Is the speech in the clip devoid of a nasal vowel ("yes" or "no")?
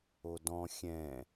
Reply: no